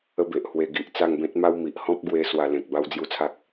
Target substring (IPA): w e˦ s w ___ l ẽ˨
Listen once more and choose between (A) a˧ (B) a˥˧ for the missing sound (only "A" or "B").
A